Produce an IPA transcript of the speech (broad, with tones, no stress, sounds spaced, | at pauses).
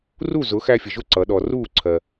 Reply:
r u˥˨ z ʊ˨˥ x æ˦ fʲ ə˩ ʒ ʊ˥˨ ǀ ʌ˩˧ ɗ ɔ˩ r uː˥˨ ǀʰ ɜ˩